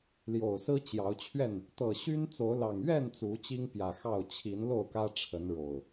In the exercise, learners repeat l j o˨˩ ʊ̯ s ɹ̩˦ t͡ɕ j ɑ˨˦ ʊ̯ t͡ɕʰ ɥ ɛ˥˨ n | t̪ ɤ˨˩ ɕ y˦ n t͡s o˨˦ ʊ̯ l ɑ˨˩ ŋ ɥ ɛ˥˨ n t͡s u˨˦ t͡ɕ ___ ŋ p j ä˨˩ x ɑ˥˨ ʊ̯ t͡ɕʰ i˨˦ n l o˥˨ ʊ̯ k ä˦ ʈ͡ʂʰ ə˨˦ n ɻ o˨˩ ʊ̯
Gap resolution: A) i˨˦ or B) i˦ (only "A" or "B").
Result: B